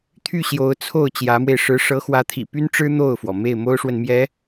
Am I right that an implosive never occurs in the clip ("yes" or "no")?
yes